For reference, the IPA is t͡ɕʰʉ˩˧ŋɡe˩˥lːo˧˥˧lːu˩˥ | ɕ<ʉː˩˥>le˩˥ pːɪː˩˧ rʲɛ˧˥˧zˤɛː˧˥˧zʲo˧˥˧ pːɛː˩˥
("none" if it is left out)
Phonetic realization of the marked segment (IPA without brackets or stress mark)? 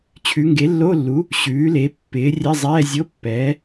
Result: ʉː˩˥